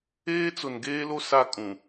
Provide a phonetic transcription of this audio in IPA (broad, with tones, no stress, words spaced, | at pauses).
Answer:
eː˦t͡sʊ˨nɡeː˦lo˦ sa˦ kʼũ˨